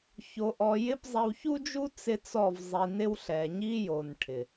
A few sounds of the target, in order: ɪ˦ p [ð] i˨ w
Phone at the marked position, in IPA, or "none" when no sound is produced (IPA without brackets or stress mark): zˤ